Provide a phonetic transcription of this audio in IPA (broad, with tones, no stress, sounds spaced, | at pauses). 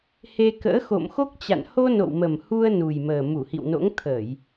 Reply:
h e˧ k ə̰ː˧˥ x o̰˧˨ m x o˦˥ k̚ t͡ɕ a̰˧˨ n h o˧ n o̰˧˨ w m ə˨˩ m h u˧ ə̯ n u˨˩ j m əː˨˩ m u˧˩ h ḭ˧˨ w n o̰˧˥ ŋ t̪ʰ əː˧˩˨ j